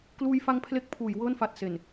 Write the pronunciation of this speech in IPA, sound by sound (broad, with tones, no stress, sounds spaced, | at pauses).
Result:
k l uː˧ j f a˧ ŋ pʰ l e˦˥ k̚ pʰ uː˩˦ j w ɤː˥˩ n f a˨˩ t̚ s e˨˩ n